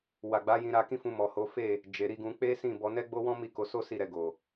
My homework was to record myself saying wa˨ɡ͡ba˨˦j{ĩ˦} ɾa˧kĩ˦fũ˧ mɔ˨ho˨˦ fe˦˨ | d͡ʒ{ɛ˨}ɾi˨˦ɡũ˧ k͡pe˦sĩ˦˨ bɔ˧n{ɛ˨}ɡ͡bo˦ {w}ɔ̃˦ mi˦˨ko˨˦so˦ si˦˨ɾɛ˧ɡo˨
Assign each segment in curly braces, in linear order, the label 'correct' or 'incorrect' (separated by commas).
incorrect, incorrect, incorrect, correct